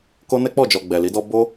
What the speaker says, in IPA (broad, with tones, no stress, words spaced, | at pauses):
ko˦ nɛ˦k͡pɔ˦˨d͡ʒɔ˨ ɡ͡bɛ˨li˨˦dɔ˦ bo˦